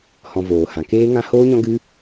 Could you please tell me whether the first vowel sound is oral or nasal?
nasal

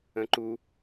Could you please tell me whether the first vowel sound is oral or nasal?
nasal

